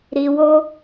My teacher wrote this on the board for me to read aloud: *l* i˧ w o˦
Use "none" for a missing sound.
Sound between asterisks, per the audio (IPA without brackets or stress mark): ɾ